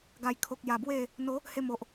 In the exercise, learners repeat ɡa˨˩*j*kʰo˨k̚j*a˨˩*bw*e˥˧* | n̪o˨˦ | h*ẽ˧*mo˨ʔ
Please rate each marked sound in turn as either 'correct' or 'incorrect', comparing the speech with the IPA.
correct, correct, correct, incorrect: e˧

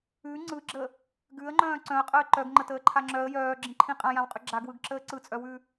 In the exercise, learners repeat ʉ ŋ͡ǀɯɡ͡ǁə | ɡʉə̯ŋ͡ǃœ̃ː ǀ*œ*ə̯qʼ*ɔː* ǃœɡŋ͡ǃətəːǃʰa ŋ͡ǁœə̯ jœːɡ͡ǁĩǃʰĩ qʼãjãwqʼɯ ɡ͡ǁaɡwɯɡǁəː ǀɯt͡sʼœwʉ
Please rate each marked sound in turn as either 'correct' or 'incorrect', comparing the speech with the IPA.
incorrect: œ̃, incorrect: əː

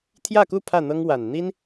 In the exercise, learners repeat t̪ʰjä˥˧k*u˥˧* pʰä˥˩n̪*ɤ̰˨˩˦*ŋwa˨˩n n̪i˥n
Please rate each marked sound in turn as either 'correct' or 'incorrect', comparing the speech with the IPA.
correct, incorrect: ɤ˥

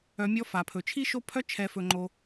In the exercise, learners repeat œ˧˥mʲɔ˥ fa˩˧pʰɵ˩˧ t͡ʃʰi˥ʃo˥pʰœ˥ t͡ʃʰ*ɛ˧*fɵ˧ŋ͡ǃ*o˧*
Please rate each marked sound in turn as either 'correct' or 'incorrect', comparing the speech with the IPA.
correct, correct

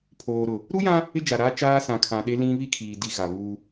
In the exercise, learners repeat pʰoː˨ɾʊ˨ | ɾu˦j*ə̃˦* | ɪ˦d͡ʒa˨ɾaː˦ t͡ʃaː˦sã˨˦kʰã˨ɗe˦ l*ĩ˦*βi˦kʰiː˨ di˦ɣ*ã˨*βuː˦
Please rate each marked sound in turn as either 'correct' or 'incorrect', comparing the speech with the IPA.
incorrect: ã˦, correct, incorrect: a˨

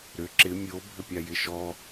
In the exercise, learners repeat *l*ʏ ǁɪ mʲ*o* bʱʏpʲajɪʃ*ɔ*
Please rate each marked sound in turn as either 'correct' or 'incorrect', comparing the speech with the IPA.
incorrect: ɾ, correct, correct

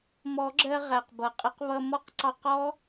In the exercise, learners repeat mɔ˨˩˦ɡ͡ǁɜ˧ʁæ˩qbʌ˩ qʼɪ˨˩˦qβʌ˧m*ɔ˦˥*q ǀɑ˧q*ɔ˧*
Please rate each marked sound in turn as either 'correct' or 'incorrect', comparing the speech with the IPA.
correct, incorrect: ɔ˦˥

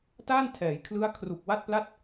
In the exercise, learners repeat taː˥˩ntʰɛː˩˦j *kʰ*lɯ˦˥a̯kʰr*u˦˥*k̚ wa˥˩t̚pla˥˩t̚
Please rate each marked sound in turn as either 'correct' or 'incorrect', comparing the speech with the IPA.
correct, incorrect: u˨˩

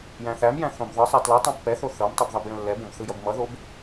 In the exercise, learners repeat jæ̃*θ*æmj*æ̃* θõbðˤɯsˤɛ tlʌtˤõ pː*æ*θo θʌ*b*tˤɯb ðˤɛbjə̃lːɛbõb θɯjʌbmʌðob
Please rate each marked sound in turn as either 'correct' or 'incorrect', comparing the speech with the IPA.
correct, correct, incorrect: ɛ, incorrect: m

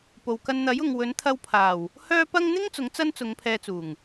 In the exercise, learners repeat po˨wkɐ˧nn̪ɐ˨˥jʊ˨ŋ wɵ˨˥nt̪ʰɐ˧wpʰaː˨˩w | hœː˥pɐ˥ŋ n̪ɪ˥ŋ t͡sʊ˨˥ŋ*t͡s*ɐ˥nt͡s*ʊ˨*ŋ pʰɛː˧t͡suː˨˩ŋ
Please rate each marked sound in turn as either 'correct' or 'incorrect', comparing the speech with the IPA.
correct, incorrect: ʊ˨˧

